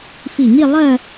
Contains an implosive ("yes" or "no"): no